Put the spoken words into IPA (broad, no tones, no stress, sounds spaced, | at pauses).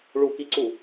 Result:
ɭ u k i ǀ u